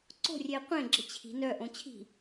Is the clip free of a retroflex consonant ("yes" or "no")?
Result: yes